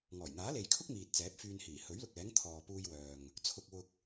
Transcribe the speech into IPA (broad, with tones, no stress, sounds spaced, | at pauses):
ŋ ɔː˨˩ j n̪ aː˨˥ l e˨ j kʰ ʊ˥ k̚ m iː˨ t̚ t͡s ɛː˨˥ p̚ f yː˧ n h iː˨˩ h ɵ˨˥ ɥ l ʊ˨ k̚ ɛː˨˥ ŋ t̪ʰ ɔː˨ p uː˧ j w œː˨ ŋ | t͡sʰ ʊ˧ k̚ w ʊ˧ k̚